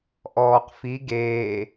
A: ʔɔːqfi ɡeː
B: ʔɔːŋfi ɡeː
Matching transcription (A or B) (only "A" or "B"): A